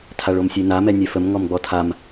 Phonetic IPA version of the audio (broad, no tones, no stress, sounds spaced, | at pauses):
tʰ a ɭ o m sʲ e n a m ɛ nʲ ɛ f ə m ŋ ɔ m ɡ͡b ɔ tʰ a m